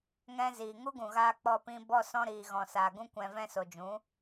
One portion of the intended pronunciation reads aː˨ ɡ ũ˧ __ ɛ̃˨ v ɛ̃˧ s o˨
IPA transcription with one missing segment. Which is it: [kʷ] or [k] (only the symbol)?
kʷ